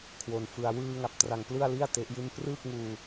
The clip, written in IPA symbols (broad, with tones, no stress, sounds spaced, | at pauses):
kʰ w o˧ n f ɯ˧ a̯ w ɯː˧ ŋ a˨˩ p̚ t r a˧ ŋ p l ɯ˥˩ a̯ l i˥˩ a̯ t e˦˥ ʔ j i˥˩ n p r ɯː˥˩ k̚ ŋ uː˧